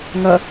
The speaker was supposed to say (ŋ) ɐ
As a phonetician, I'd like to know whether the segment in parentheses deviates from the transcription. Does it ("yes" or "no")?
no